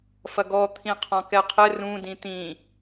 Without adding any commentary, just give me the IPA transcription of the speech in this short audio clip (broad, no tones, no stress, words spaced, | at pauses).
fɐɡɔ t̪ʰĩqʰɔ̃kɛqʰɘ rũ dĩt̪ĩ